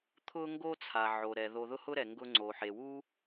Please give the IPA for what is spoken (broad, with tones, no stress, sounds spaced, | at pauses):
t̪ʰ ʊ˥ ŋ ɡ o˥ t͡sʰ a˩ ʕ o˩ ɾ ɛ˩ ð o˨ ð ʊ˦ h ʊ˦ ɾ ɛ˩ ŋ ɡ ʊ˦ ŋ͡ǀ o˩ ħ e˩ w u˥